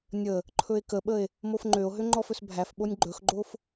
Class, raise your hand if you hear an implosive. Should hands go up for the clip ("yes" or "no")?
yes